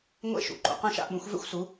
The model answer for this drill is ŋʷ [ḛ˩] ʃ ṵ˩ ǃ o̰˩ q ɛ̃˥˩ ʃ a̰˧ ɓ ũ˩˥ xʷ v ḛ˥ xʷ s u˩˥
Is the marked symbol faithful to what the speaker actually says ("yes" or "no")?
no